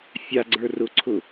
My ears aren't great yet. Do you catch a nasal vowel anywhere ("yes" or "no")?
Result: no